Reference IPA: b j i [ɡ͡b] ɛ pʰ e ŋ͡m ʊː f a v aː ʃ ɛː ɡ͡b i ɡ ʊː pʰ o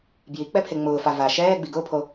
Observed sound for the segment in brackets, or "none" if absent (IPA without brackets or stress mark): k͡p